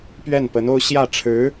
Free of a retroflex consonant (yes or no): no